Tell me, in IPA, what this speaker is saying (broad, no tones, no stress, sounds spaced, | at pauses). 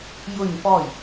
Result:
j ʊ ɲ p ɔ j